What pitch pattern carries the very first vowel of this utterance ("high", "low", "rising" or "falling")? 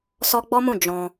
high